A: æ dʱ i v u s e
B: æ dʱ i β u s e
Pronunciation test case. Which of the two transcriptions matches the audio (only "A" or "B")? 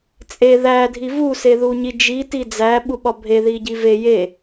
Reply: A